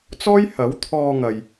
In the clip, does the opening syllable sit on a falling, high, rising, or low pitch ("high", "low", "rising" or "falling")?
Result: high